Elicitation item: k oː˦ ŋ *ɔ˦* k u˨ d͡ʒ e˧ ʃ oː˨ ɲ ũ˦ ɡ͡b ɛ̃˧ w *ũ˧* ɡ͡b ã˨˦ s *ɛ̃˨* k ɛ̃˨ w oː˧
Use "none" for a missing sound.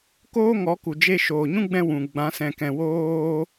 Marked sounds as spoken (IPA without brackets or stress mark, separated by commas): ɔ˨˦, ũ˨, ɛ̃˨